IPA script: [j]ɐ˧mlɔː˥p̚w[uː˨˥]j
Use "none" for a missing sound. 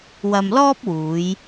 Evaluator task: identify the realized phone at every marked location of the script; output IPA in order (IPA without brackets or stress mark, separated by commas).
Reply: w, uː˨˧